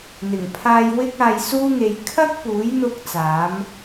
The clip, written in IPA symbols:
n̪ ɪ˨˩ ŋ pʰ aː˧ j w ɪ˥ k̚ aː˧ j s uː˥ ŋ e˧ j kʰ ɐ˥ k̚ p uː˨˥ j n̪ ʊ˧ k̚ t͡s aː˨˥ m

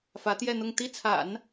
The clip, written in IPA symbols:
f ä˧˥ t̪ j ɛ˥˧ n̪ ʊ˥˧ ŋ t̪ i˥˩ t͡sʰ a̰˨˩˦ n

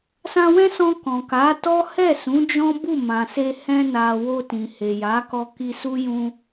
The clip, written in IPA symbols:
s ã˧ w ɛ̃˦ s ɔ̃˧ k ɔ̃˨ k a˨˦ t ɔ˦ h ɛ˦˨ s ũ˨˦ d͡ʒ ɔ̃˦ b u˦˨ m ã˨ s e˧ h ɛ̃˧ n a˨ w o˧ t ĩ˨ h e˨ j a˨˦ k ɔ˧ k i˧ s u˦ j ũ˧

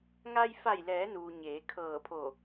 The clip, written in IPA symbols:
ŋ a˧ j f a˧˩ j l ɛː˩˧ n uː˩ ɲ eː˩˧ kʰ ɤː˧˩ pʰ o˧˩

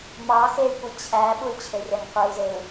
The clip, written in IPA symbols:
m ɑ x e y̯ kʷ i t͡ɕʰ æ ɓ u y̯ t͡ɕʰ e rʲ ɑ ŋ qʷ ɯ u̯ z e u̯

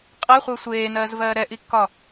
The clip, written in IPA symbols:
qʼ ɛ χʷ ɘː sʷ eː n ɜː z v ɜː ɾ ɛ ʔ i kː ɒ

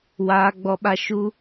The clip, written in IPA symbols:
w aː˧ ɡ͡b ɔ˧ ɓ a˧ ʃ u˦

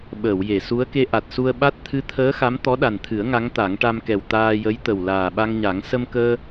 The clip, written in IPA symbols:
ɓ əː˨˩˨ w j e˨˩˨ s u˧˥ ə̯ k e˧ ʔ a˨˩ t̚ s u˧ ə̯ ɓ a˦˥ t̚ t̪ʰ ɨ˧˥ t̪ʰ əː˧˥ x a˧˥ m t̪ ɔ˧˥ ɗ a˨˩ n t̪ʰ ɨ˨˩˦ ə̯ ŋ a˧˥ ŋ t̪ a˨˩˦ ŋ ʈ a˧ m k ɛ˨˩ w t̪ aː˧ j ə˧˥ j t̪ ə˨˩ w l aː˨˩ ɓ a˧ ŋ ɲ a˨˩˦ ŋ s ə˧ m k əː˧

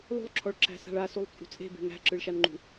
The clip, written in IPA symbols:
lˠ ṳ lˠ ǁʰ ɔ ɭ ǁ æ̤ s a̤ ɭ a s u lˠ t͡sʼ ṳ t͡sʼ e̤ b e̤ ŋ æ̤ ǁ ɯ ɭ ʃ a n ŋ͡ǃ ṳ

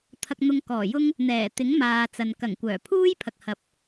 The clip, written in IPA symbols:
t̪ʰ ɐ˧ k̚ n̪ ʊ˧ ŋ k ɔː˨˩ j ʊ˥ ŋ | n̪ ɛː˨˩ t̪ ɪ˨˥ ŋ m aː˨ t͡s ɐ˨ n k ɐ˨˩ ŋ kʷ œː˨˩ pʰ uː˥ j pʰ ɐ˨ k̚ h ɐ˨ p̚

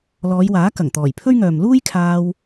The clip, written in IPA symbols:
l ɔː˨˧ j w aː˨˥ k ɐ˨˩ ŋ t̪ ɔː˨˩ j pʰ ɵ˥ ɥ ŋ œː˨ m l uː˥ j kʰ aː˧ w

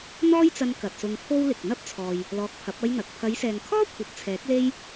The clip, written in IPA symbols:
n̪ ɔː˥ j t͡s ɐ˧ n k ɐ˨ t̚ s ʊ˧ ŋ pʰ o˥ w l ɪ˨ k̚ n̪ ɐ˥ p̚ t͡sʰ ɔː˨ j | l ɔː˧ k̚ pʰ ɐ˨˥ p̚ ɐ˥ j n̪ ɐ˨ k̚ pʰ ɐ˨˧ j s ɛː˨ ŋ kʰ ɔː˥ kʷʰ ɐ˨˥ p̚ t͡sʰ ɛː˨˥ k̚ l e˥ j

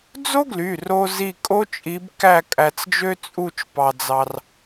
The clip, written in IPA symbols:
d͡z o˥ ɡ l y˩˧˩ r o˧ z i˥˧ kʼ o˥ t͡ʃʼ i˧˥ b k æ˥˧ kʼ æ˧ t͡s d͡ʒ ø˥ t͡sʼ u˥˧ t͡ʃ p ɑ˧ d͡z ɑ˧ r

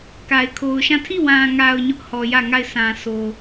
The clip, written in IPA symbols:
k a˨ ɪ̯ kʰ o˨ ʊ̯ ʃ ã˦˨ tʰ i˦˨ w ã˨ ŋ a˨ ʊ̯ ɲ ʊ˦ ʔ h ɔ˨ j ä˦˨ ŋ a˦˨ ɪ̯ s ã˨ s o˨

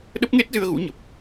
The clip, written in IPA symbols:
ɗ ə˦˥ p̚ ŋ e˦˥ t̚ z ɨ˧ ə̯ ɣ ṵ˧˥ ɲ ə˨˩ p̚

